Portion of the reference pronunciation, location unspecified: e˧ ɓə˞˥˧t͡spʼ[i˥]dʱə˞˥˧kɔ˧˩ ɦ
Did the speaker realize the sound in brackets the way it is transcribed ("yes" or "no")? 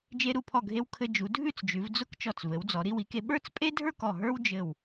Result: no